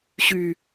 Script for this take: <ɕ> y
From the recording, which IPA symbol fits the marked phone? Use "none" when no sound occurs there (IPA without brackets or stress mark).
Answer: ɕ